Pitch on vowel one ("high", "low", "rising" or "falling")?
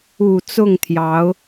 low